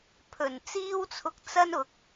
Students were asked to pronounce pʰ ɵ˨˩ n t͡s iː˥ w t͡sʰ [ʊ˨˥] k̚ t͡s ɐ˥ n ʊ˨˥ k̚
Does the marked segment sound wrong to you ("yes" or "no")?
yes